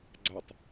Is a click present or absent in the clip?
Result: present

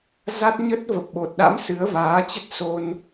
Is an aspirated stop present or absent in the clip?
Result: absent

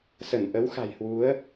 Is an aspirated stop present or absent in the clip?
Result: absent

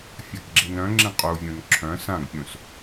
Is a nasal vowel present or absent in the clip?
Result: present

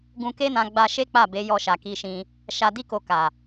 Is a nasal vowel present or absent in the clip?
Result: present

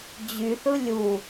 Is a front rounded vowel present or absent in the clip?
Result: present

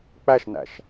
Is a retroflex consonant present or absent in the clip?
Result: absent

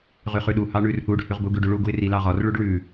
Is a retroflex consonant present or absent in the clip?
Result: present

